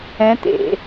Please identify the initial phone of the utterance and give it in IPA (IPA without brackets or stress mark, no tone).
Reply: ɛ̃